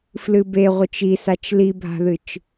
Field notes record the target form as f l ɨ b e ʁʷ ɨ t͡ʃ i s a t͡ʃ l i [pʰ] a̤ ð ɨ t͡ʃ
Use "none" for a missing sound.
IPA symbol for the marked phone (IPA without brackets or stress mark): bʱ